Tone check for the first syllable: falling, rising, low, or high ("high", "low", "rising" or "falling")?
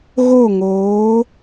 falling